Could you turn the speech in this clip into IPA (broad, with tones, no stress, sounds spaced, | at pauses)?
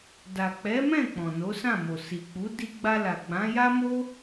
d a˨ k͡p ɛ˨˦ m ɛ̃˦˨ k͡p ɔ̃˨ n o˨˦ s ã˦˨ m o˨ s i˨ k͡p u˨˦ d i˧ ɡ͡b a˧ l a˨ ɡ͡b ã˨˦ j a˦ m o˦